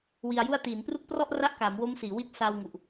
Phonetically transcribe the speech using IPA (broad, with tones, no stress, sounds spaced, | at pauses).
w i˧ a̯ j u˥˩ a̯ t iː˩˦ n p r u˦˥ k̚ p r ɔ˥˩ ʔ r a˥˩ ʔ k aː˩˦ m w o˦˥ m s iː˩˦ w i˦˥ t̚ s aː˧ w ŋ u˨˩ ʔ